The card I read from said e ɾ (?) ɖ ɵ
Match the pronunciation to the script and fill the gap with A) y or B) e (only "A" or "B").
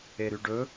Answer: A